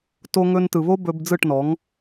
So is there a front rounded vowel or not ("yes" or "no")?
no